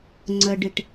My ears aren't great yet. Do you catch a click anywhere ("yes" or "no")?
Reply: yes